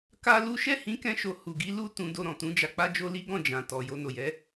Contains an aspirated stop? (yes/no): no